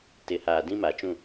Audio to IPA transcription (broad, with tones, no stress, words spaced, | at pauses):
tɪ˨˦haː˨ dĩ˦ma˨t͡ʃũ˦˨